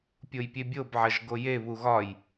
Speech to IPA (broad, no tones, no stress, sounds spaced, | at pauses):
pʲ o j pʲ e bʲ o b ʕ ɐ ʒ ɡ o j e β u ɣ ɒ j